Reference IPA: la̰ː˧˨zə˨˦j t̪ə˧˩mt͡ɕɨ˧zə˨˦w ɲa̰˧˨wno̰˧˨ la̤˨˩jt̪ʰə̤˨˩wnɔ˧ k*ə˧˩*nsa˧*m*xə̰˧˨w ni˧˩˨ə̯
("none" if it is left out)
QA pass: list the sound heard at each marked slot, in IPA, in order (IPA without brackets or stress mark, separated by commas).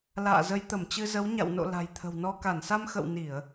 a˧˩, m